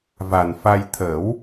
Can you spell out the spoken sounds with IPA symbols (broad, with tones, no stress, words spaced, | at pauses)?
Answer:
va˨˩nfa˧j t̪ʰə˨˩˦w